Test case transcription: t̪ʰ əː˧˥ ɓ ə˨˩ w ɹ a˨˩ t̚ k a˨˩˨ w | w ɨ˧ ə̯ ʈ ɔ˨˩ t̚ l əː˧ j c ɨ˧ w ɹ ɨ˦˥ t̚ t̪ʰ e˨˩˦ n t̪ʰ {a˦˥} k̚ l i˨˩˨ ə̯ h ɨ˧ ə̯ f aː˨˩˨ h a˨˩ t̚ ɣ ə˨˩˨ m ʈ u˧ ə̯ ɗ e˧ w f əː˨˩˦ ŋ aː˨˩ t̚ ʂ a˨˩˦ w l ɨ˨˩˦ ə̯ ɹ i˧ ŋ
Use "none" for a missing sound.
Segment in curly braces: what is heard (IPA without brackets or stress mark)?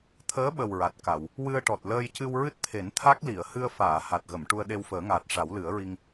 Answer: a˦˥